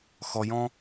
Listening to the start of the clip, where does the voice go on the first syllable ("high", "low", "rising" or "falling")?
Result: low